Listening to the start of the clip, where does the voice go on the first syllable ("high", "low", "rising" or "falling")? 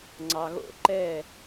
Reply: low